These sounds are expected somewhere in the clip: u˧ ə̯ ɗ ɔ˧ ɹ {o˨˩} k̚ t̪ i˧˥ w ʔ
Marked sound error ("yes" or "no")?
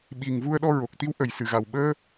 no